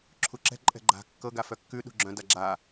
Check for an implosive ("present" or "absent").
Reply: present